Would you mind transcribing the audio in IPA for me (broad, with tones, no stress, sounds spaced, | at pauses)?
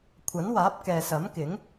kʷʰ ɐ˨˥ n w aː˨˥ p̚ k ɛː˨ s ɐ˨˥ m k ɪ˨˥ ŋ